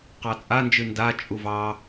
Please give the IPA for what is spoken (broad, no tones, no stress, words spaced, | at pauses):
qɑt͡sʼand͡ʒɨ nda t͡ʃʼuvɑ